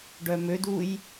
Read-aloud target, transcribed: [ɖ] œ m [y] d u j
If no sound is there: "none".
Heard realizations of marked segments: ɖ, ø

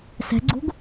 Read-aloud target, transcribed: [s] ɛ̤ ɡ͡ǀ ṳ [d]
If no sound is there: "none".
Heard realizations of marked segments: s, ɡ

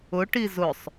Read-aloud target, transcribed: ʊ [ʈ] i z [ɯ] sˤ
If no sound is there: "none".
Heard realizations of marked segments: ʈ, ʊ

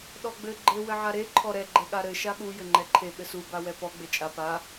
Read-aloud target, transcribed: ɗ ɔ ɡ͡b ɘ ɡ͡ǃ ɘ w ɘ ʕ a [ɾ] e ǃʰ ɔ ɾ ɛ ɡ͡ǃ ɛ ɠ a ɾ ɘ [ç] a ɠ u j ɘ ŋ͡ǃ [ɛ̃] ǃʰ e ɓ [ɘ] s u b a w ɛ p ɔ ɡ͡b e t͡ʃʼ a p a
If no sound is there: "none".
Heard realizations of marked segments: ɾ, ʃ, ɛ, ɘ

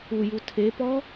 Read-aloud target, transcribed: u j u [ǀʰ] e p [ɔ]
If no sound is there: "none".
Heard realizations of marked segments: tʰ, ɔ

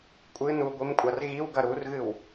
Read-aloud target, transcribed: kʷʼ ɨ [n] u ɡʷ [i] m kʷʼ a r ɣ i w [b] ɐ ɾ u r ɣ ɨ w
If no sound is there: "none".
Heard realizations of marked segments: n, i, ɡ

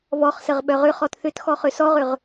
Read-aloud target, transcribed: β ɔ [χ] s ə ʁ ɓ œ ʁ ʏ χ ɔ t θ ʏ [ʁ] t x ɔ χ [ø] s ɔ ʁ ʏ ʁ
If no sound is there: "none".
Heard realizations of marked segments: χ, none, ø

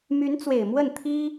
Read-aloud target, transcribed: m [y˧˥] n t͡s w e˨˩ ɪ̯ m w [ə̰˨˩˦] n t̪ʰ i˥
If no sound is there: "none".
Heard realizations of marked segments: y˧˥, ə˥˩

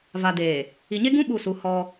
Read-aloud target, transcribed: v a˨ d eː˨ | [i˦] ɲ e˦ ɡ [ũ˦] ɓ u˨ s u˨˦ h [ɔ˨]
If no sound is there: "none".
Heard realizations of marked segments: i˨, ũ˦, ɔ˦

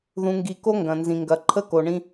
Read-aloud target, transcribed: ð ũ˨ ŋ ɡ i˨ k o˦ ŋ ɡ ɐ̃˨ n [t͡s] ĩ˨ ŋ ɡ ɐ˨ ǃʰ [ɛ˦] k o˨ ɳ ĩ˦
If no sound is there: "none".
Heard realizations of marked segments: z, ə˦

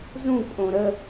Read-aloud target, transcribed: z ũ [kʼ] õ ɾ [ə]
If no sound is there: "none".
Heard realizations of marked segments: kʼ, ə

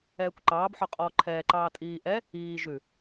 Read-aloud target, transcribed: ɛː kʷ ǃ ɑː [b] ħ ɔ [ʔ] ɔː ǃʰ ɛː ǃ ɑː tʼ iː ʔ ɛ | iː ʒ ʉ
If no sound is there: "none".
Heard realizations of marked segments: b, qʼ

